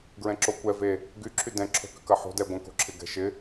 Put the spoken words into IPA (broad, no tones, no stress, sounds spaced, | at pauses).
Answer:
ɡ ɹ ɛ̃ ǁ o kʷ ɛ v e | ɡ y ǁʰ y d ɛ̃ ǁʰ o̤ k ʏ k ɐ ħ o̤ d ɛ ɡʷ ɛ̃ k o̤ ǁʰ ɪ ɡ ɛ̤ ʃ ɪ